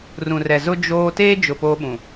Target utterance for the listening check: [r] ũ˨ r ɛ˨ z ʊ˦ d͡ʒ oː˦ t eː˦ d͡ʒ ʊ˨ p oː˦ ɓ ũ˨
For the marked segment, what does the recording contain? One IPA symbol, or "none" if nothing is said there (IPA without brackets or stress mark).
r